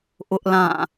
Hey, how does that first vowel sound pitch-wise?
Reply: high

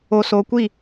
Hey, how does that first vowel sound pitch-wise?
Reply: low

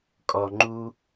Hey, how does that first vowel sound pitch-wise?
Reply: low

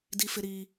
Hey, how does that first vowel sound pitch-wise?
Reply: high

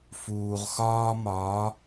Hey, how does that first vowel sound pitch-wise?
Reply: low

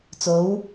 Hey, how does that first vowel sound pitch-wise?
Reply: rising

